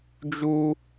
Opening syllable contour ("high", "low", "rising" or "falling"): high